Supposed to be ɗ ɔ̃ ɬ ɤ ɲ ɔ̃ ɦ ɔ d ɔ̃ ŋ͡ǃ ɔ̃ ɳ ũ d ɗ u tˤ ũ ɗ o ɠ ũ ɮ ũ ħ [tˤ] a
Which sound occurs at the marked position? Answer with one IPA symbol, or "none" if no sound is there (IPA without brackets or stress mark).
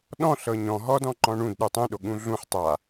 tˤ